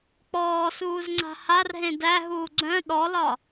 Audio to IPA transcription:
k͡pɔːsuːzŋ͡ǀa̤ harɦẽ dæɦuː ɡ͡ǀœ̃ ɗɔlɒ

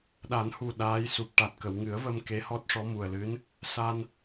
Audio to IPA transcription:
ɗa˨˩˦nhu˨˩ ɗaː˧˥j su˨˩p̚ʈa˨˩t̚kə˨˩˨w ŋɨ˨˩˦ə̯və˧m ke˧˥hɔ˦˥t̚ʂɔ˧˥mu˨˩ə̯ lɨ˧˥n | sa˧n

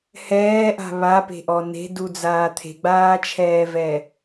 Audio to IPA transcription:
hɛːʔa̤ βape̤ʔɔ ne̤dud͡zaː t̪ʰe̤ɡ͡baːt͡ʃʰɛːvɛ

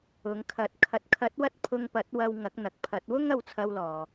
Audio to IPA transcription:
ʊ˨˧ŋkʰɐ˨˥t̚ kʰɐ˨t̚kʰɐ˨˥t̚wɐ˧t̚ pʰʊ˧ŋpɐ˨˥t̚wɐ˧w ŋɐ˨˥k̚n̪ɐ˨k̚pʰɐ˨˥t̚ wʊ˥ŋɐ˧wt͡sʰɐ˧wlɔː˨

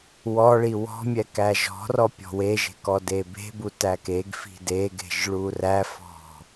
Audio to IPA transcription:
wɔ ɭiwɔ̤mʲɛ kæʒɔ̤rɔ pʲɔ̤weʒe̤ kɔdebe̤bu tækeɡfi̤ deɡe̤ʒ ɭuræfɔ̤

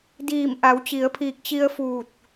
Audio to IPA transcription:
diː˧˩mʔa˩˧wt͡ɕi˩˧ə̯pʰiː˧˩k̚ t͡ɕi˧ə̯fuː˧˩t̚

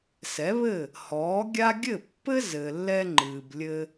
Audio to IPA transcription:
sɛ˩˥βɘ˥˩ | hɔː˩˥ɡʲa˥ ɡʲɘ˥˩pːɘ˥zɘː˩lːɛ˧ ŋ͡ǃɨː˩blʲɘ˧

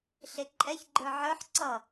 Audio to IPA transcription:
ɬeǃʼɛçɡ͡ǃə˞ ʕə˞ħ ǀʌ

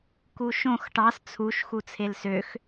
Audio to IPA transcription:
kuʃõx ʈɑs t͡sʰuʃ xut͡sʰelsøx

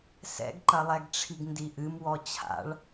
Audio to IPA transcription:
sɛ̰ɡǃɐlˠɛɡʈ͡ʂʰiɡ ndiʔɨmwɔ t͡ɕʰa̰ɭ

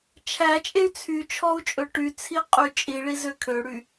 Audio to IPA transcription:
t͡ʃʰæt͡ʃʼey̯ t͡sʰyt͡ʃʰɔu̯ t͡ʃʼɵʈyt͡sʰi qʼyt͡ʃʼiɭiz økʰøɽy

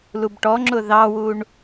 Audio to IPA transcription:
lubʈɔŋ͡ǁʊ ðɑwuɳ

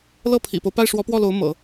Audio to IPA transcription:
lɤ˥˩pʰḭ˨˩po˦ʊ̯ pa˥˩ɪ̯ʂwɔ˧˥pwɔ˥˩lo˧˥ʊ̯ mɤ̰˨˩˦

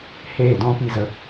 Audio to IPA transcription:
heː˦˨dɔ̃˦pi˧ zə˧

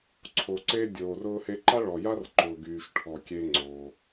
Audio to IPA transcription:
ǀʰo˩ǀe˧ dʲoː˩rʊː˧he˧ ǃa˥ɭɔ˩ja˥r ǃʊː˩ɡyː˩ʃʈʰɔ˩ kʲe˧ ŋ͡ǀo˩

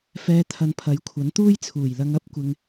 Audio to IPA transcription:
fɛː˨t̪ʰɐ˨n pʰɐ˨˥jkʷʰɐ˨˥n t̪uː˥jt͡sʰuː˨˩jlɐ˧ŋ ɐ˥p̚kʷɪ˨ŋ

